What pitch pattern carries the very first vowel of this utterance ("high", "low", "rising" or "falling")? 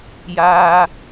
high